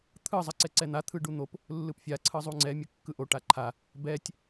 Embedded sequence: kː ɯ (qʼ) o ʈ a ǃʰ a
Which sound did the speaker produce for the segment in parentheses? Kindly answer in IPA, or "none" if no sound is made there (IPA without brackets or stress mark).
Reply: ʔ